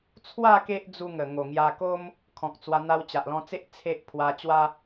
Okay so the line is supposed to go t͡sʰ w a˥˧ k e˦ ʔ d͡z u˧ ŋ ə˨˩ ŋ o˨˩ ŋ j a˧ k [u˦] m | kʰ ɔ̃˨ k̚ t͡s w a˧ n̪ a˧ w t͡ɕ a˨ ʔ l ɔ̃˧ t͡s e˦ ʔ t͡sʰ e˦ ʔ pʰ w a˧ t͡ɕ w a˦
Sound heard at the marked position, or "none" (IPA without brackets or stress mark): o˦